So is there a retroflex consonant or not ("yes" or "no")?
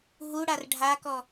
yes